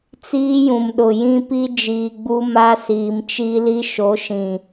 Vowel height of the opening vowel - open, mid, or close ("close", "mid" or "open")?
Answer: close